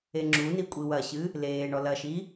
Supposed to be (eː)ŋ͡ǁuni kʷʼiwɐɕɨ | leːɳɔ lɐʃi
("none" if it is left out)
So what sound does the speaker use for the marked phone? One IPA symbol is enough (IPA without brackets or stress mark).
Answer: e